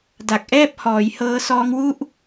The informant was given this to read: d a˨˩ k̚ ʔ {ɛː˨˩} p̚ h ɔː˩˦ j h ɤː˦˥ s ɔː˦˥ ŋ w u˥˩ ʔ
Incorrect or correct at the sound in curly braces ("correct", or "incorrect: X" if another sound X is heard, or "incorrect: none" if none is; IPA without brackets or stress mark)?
incorrect: ɛː˥˩